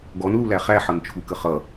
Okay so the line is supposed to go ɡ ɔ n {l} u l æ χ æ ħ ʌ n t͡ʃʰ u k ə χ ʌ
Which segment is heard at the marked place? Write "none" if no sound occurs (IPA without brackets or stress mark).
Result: l